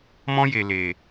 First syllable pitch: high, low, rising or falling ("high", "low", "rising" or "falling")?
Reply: high